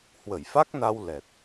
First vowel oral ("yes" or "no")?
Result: yes